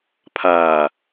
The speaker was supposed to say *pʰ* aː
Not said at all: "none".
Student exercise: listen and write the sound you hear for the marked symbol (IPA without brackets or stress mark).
pʰ